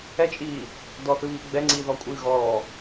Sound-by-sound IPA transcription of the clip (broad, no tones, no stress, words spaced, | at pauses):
ɛt͡ʃʼiː | dɔθɨβiː ɡ͡bɛŋ͡ǀiː ðɔkʷʼɨː ɣɔː